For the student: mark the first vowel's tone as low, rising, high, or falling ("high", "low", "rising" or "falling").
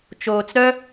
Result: low